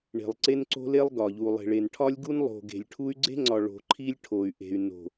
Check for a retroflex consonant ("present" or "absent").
present